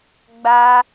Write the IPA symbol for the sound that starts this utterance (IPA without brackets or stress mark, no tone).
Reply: ɡ͡b